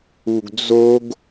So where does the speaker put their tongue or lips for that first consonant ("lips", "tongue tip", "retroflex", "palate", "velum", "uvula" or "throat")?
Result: velum